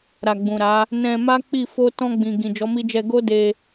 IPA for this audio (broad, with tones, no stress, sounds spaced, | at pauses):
ɾ a˨ ɡ͡b ũ˨ ɾ a˨˦ | n ɛ̃˧ m a˦ k͡p i˦˨ f o˧ t ɔ̃˧ ɡ͡b ĩ˨ ɡ ĩ˨ d͡ʒ ɔ˨˦ m i˧ d͡ʒ ɛ˧ ɡ o˦ d e˧